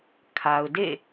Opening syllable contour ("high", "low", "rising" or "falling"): low